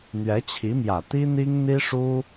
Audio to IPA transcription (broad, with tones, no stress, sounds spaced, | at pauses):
n̪ ɥ ɛ˧˥ t͡ɕʰ i˧˥ m j ä˨˩ t̪ i˥ n̪ i˥ ŋ n̪ i˥ ʂ u˥